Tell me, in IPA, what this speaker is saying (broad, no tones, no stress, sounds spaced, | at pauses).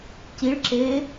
c i ɭ ǁ eː